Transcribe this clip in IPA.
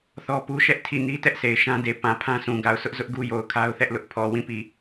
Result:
θ ɔ˦ p u˦ ʃ ɛ˦ ʔ tʰ i˦˨ n i˦ t ɛ˦ ʔ s e˨ ɪ̯ ʃ ã˦ d e˨ p ã˨ pʰ ã˦ s ũ˨ ɡ a˨ ʊ̯ sʰ ʊ˦ ʔ z ʊ˦ ʔ ɡ u˦ j o˨ ʊ̯ kʰ a˦ ʊ̯ θ ɛ˦ ʔ l ʊ˦ ʔ pʰ ɔ˨ w ĩ˦˨ p i˨

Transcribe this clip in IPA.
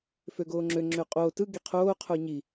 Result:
f ø ɡ oː ŋ͡ǁ ø ŋ͡ǁ ø qʼ oː t ɯ ɡ i qʰ oː qʰ o ɲ i

